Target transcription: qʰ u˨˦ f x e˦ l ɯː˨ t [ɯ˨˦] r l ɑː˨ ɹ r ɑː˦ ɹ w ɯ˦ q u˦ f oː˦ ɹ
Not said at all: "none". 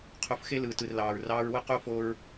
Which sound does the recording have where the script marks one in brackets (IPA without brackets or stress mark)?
ɯ˨